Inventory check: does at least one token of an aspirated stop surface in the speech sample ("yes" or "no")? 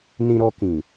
no